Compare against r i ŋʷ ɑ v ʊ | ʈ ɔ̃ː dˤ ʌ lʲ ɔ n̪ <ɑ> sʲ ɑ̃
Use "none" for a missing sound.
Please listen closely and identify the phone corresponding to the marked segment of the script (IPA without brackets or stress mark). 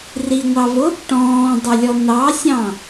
ɑ